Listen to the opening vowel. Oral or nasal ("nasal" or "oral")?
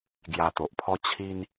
oral